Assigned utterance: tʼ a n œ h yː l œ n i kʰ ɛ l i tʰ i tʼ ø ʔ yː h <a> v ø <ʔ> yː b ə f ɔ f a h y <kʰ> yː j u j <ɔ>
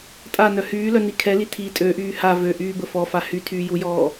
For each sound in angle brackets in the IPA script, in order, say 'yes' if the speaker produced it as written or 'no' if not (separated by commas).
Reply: yes, yes, no, no